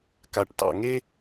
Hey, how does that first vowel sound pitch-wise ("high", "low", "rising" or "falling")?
low